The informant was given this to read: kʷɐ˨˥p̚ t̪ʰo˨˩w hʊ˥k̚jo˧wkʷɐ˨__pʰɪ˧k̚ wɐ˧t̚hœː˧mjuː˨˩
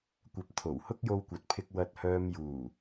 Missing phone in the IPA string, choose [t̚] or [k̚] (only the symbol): t̚